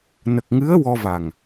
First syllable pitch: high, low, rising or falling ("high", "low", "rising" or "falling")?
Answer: low